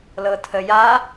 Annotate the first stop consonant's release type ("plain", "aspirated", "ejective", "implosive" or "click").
aspirated